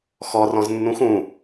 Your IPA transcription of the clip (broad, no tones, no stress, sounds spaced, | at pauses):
x ɔ r ɔ̃ z nː ũ x ũ